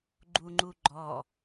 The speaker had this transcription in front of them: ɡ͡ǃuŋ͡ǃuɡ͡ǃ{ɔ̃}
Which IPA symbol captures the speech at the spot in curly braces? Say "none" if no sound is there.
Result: ɔ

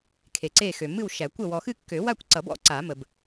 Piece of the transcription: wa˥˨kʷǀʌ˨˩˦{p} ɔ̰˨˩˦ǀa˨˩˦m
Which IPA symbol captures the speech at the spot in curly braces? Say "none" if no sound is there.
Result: b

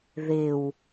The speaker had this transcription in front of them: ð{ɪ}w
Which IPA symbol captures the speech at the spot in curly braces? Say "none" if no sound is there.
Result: ɪ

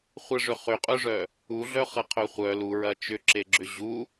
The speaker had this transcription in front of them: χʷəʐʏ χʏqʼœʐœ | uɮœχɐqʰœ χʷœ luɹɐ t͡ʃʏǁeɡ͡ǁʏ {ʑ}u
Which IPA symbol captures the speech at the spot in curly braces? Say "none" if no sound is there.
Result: ʑ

